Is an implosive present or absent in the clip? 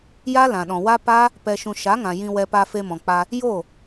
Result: present